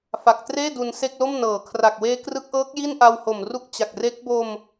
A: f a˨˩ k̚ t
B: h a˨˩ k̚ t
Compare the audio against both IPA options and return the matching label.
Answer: A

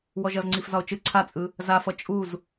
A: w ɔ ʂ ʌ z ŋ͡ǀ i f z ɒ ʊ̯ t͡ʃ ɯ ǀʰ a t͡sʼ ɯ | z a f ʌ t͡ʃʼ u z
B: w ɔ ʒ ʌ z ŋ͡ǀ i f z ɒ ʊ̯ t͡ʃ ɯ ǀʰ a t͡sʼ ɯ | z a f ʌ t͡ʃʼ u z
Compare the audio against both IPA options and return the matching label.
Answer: B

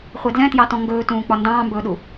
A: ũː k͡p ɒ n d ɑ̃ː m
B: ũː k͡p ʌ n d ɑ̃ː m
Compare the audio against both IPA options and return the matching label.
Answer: A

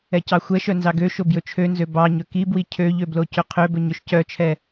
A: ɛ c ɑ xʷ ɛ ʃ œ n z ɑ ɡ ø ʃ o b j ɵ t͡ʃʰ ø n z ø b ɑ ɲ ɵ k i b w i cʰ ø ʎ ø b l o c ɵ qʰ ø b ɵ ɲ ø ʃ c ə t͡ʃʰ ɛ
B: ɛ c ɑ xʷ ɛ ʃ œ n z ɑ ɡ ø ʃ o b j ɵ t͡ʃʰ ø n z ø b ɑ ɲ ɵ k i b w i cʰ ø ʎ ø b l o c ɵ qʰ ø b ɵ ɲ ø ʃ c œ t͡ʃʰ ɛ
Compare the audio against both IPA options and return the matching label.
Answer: B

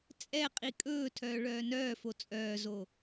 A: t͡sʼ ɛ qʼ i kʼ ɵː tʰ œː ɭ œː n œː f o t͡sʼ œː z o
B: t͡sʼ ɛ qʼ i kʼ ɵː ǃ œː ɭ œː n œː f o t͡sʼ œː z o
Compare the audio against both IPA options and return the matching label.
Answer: A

